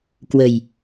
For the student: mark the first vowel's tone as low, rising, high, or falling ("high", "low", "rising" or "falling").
low